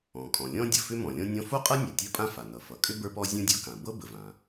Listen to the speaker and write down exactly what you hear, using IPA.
ɔ̃˩ kʼ ɔ̃˩ lʲ ɔ̃˥ dʲ ʌ˩ f ʏ˥ m ɔ̃˩ lʲ ɔ̃˥ nʲ ɔ̃˥ f o˥ qʼ ɤ˥ nʲ a˩ tʲ ɤ˥ pʼ ã˥ f a˩ n ʌ˩ f ʌ˩ kʼ ʏ˥ b ə˞˥ p ɔ˥ zʲ õ˥ dʲ o˥ k ã˩ b ɤ˥ b ə˩ v ã˩

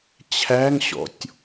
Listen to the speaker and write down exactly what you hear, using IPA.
t͡ɕʰ æ ŋ ɕ ɔ̰ tʲ

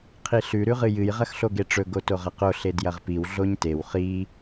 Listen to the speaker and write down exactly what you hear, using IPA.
qʰ i ɬ ʉ ɾ ʉ ʁ ɨ j ɨ j ʁ ɐ x ɬ o ɡ e ʈ͡ʂ ɵ ɡ o t o ʁ ɐ q o ɬ e d j ɐ ʁ p i w ɮ o ɲ t e w χ i

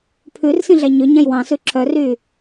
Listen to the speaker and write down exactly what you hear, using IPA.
pʰ ʉ r s ĩ ɮ æ ɲ ø ɲ æ̃ j w ɑ̃ s ʉ ǁʰ œ r yː

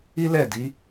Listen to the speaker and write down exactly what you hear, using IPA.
i˦ l ɛ˦˨ d i˨˦

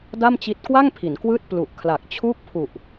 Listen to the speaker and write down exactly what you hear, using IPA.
d a˥˩ m t͡ɕ i˦˥ t̚ k w a˥˩ ŋ pʰ i˩˦ n k w ɯː˥˩ t̚ p l u˨˩ ʔ kʰ l a˨˩ k̚ t͡ɕʰ uː˥˩ k̚ pʰ u˨˩ ʔ

